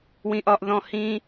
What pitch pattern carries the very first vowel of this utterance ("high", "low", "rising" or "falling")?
high